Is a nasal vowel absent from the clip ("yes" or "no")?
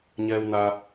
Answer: yes